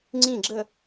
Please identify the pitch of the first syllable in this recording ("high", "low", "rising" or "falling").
falling